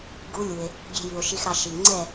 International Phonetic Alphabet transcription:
ɡ u˧˥ lʲ u˩ e̯ | ɡʲ e̤˧ j y˩ o̯ ʃ i˧ x ɾ ɑ˧ ʃ i˩ ŋ͡ǀ ɛ˥˨

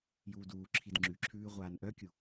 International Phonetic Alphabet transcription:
j uː d uː ǁʰ i d ŋ͡ǁ ʉ ǁʰ ʉː ʁʷ aː n ʔ œ kʲ u

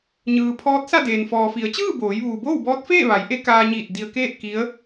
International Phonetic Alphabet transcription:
ɲ ɯː˩ pʰ ɔː˧˥ t̚ s a˥˨ d eː˩ n f ɔː˩ f i˩˧ ə̯ t͡ɕ ɯː˥˨ b oː˩˧ j ʋ uː˩ b oː˥˨ w b ɔː˧˥ t̚ f eː˥˨ ʋ a˩˧ j ʔ e˧˥ k aː˧ ɲ iː˧˩ t̚ d i˧ ə̯ k eː˥˨ t̚ k i˧˥ ə̯

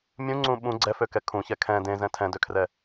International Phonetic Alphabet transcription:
mʲ ũ ŋ͡ǀ ũ ɓ ũ ɡ͡ǀ ɛ f ø k ɛ kʰ ũ ç ɛ kʰ ɛ̃ d ẽ z ɛ̃ tʰ ɛ̃ d ø kʰ r ɛ

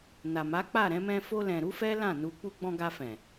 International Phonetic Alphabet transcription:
n a˨ m a˨˦ k͡p a˦˨ ɾ ɛ̃˨˦ m ɛ̃˧ f o˧ l ɛ̃˨ ɾ u˨˦ f ɛ˦ l ã˦˨ n u˧ k͡p u˧ ɡ͡b ɔ̃˧ ɡ a˧ f ɛ̃˨

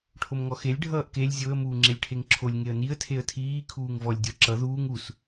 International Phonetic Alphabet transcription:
ʈʰ o m ŋ ɔ x e lʲ ɖʱ ʌː ʔ k e lʲ zʲ o ə̯ m uː ŋ͡ǁ e lʲ ʈʰ e ŋ ǁʰ o lʲ ŋ e ə̯ n i ə̯ tʰ e ə̯ tʰ iː kʰ uː ŋ v ɔ lʲ dʲ ɔ ǁ ʌ ð uː ŋ u s

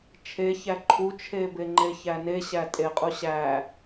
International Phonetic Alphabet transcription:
t͡ʃʰ e ç æ ǃʰ u t͡ʃʰ e b e ŋ͡ǃ e ç æ n e ɕ æ tʼ e qʼ u ɕ æ

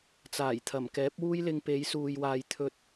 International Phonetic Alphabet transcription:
t͡s aː˨˩ j t̪ʰ ɐ˨˩ m k ɛː˨˥ p̚ w uː˥ j l ɪ˧ ŋ p e˨˧ j s uː˨ j w aː˨ j t̪ʰ ɵ˧ t̚

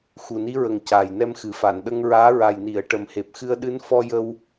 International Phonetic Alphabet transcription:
x u˨˩ n i˧˥ ɹ ə˨˩ ŋ c aː˨˩ j n ɛ˧ m x ɨ˨˩ f a˨˩˨ n ɗ ə˧ ŋ ɹ aː˧˥ ɹ a˨˩ j n i˨˩˨ ə̯ ʈ ə˨˩ m h e˨˩ p̚ x ɨ˧ ə̯ ɗ ɨ˧˥ n f ɔ˧ j ə˧ w

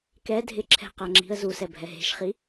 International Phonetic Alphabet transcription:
k ɛ dʱ ɪ ǁʰ ɛ̤ q a ŋ͡ǁ i̤ ə̯ z u s ɛ bʱ ɛ ɦ e̤ ʃ χ i

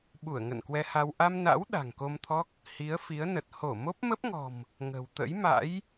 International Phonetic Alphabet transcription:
ɓ u˧˩ ə̯ ŋ ə̰˧˨ n k w ɛ˧ h a˧ w ʔ a˧ m n a̰˧˥ w ɗ a̤˨˩ ŋ k o˧ m t̪ʰ ɔ˦˥ k̚ | h i˨˦ ə̯ f i˨˦ ə̯ n ə˨˩ t̚ h o˧˩ m o˦˥ p̚ m ə˦˥ p̚ ŋ ɔ̤˨˩ m | ŋ ə̤˨˩ w t̪ ə̰˧˥ j m a̰˧˥ j

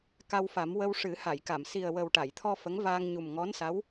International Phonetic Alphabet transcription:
k a˧ w f a˨˩˦ m w ə˧ w ʂ ɨ˨˩˦ h a˨˩˨ j k a˨˩˨ m s i˨˩ ə̯ w ə˨˩ w ʈ a˨˩˨ j t̪ʰ ɔ˧ f ə˧˥ ŋ v aː˧ ŋ ɲ u˨˩ m ŋ ɔ˧˥ n s a˧˥ w

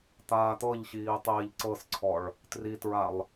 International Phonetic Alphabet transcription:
t̪ aː t̪ ɤ ʎ ɕ iː tˤ iː ʎ ǀ ɤ s ǀʰ ɔ ɭ | t r i t ɹ a lˠ

